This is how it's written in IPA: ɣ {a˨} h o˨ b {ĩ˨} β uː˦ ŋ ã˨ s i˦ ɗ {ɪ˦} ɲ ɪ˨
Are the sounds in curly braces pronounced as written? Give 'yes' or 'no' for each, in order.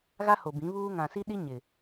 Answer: no, no, no

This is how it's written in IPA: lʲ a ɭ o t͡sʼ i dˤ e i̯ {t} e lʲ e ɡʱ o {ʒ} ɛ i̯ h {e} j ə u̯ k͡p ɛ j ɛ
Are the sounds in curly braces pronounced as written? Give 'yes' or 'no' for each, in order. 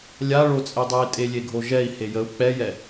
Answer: no, yes, yes

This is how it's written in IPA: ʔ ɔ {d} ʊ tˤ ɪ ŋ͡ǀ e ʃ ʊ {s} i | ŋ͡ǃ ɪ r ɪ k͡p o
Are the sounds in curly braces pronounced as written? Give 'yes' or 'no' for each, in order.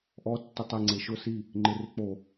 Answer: no, yes

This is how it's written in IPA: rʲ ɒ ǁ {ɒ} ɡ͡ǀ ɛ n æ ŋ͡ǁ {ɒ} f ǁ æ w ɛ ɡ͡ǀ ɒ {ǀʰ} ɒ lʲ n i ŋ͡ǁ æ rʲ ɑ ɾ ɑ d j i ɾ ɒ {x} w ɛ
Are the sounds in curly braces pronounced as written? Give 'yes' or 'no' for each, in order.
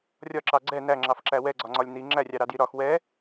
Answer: no, no, no, yes

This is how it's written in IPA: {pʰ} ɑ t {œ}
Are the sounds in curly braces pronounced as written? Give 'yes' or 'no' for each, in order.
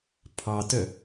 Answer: yes, yes

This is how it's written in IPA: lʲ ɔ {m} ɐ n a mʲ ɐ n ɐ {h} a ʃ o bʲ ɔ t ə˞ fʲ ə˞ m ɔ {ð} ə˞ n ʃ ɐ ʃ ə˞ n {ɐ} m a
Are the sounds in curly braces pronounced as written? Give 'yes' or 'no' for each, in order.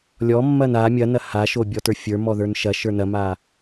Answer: no, yes, yes, yes

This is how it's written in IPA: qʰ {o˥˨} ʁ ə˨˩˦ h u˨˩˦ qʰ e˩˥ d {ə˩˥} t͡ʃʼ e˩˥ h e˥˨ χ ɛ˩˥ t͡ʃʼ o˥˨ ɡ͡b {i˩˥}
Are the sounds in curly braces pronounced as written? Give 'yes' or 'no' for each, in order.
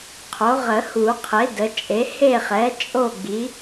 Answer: no, yes, yes

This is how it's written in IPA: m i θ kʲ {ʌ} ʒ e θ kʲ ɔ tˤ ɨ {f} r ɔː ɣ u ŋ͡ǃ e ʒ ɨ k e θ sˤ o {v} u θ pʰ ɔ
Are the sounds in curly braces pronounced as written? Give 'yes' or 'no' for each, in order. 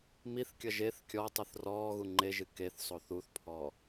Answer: yes, no, no

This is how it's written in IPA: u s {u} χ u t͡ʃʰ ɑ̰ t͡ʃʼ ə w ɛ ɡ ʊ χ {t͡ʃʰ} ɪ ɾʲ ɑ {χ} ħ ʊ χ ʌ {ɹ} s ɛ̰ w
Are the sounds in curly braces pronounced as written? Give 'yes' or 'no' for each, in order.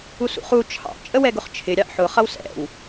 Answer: no, yes, no, no

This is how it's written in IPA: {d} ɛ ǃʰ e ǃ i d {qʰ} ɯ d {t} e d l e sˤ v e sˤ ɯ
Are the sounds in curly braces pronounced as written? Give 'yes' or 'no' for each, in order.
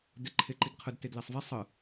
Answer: yes, yes, yes

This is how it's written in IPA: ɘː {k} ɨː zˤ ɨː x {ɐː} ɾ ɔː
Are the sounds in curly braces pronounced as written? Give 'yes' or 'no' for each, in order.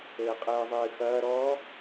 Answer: no, yes

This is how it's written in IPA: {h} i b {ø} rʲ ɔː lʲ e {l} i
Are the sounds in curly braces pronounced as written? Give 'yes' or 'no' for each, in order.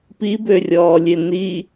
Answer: no, yes, no

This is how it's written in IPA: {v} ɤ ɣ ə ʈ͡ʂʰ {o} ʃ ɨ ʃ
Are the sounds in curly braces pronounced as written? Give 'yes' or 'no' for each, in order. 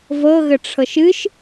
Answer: yes, no

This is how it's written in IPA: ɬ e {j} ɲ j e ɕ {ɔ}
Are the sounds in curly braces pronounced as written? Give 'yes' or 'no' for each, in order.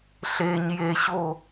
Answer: no, no

